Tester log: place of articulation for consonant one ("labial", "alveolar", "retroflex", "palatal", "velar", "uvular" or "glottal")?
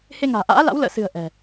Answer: glottal